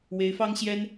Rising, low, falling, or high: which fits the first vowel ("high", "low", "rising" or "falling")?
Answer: rising